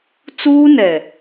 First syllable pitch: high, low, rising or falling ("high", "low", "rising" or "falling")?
high